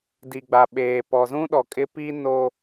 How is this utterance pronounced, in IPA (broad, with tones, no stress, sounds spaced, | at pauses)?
d i˨ ɡ͡b a˨ ɓ eː˨ p ɔ˨ z ũ˦ ɗ ɔ˨ kʼ ɪ˦ p i˦ n o˦